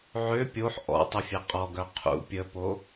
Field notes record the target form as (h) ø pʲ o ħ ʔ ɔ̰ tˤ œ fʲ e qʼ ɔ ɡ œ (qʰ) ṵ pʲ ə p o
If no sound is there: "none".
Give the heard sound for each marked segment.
ʕ, qʰ

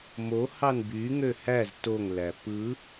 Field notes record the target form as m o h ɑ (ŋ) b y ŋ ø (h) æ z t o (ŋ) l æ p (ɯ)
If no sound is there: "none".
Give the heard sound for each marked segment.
n, h, ŋ, ɯ

